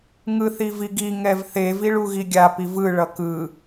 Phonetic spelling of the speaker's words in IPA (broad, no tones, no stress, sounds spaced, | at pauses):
ŋ ɯ θ i v i ɡ i ŋ ɛ v θ e v i ɭ u ɣ i ɡʲ a p i v ɯ ɭ ʌ k ɯ